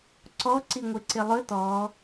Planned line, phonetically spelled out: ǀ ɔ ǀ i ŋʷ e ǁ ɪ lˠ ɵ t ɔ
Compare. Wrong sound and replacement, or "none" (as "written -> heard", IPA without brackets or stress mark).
ǁ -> ǀ